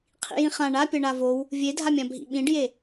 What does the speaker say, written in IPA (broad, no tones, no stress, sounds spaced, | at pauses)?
qʰ ḭ j ĩ χ ã ɳ a pʲ ɐ ɳ a v o w | vʲ e dʱ a mʲ ã bʱ ḭ ɓ ĩ ɖ j e